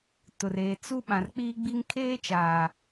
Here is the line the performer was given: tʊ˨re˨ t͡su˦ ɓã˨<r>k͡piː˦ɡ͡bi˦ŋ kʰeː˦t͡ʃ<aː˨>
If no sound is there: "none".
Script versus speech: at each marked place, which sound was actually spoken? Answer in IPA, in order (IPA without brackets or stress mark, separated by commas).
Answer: r, aː˨